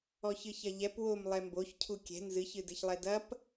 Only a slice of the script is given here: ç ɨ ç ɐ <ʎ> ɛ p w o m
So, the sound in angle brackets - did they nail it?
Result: yes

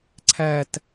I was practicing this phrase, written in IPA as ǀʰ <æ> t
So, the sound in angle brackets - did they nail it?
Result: yes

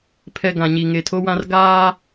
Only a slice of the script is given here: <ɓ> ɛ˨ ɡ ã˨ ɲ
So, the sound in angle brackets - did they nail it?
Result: no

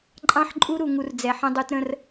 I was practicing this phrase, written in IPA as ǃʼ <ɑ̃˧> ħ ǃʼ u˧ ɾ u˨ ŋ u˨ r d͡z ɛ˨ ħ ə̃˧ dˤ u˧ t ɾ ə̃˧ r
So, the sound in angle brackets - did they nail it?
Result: yes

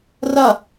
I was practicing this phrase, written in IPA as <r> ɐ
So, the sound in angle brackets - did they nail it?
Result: yes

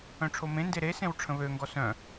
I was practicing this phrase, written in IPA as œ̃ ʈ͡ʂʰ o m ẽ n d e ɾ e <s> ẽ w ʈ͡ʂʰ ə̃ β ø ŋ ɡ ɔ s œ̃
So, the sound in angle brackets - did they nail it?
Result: yes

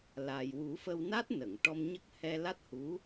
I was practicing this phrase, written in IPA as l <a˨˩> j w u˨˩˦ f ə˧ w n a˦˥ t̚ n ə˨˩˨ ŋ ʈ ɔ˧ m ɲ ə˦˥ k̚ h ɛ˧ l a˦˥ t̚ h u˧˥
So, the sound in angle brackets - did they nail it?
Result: yes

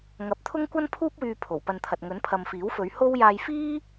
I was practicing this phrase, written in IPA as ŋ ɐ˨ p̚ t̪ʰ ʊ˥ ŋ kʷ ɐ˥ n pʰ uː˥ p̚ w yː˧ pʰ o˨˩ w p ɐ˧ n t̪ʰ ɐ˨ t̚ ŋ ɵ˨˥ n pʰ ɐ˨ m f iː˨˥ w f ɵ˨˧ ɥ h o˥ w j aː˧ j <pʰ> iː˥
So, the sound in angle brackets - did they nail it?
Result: no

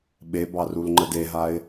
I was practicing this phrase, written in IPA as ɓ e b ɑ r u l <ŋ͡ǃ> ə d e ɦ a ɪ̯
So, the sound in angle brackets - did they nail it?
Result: yes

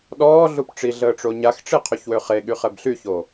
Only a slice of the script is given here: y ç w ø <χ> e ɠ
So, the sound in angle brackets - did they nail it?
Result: yes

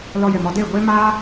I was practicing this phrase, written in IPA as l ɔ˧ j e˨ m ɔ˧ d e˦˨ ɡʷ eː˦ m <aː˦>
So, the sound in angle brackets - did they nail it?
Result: yes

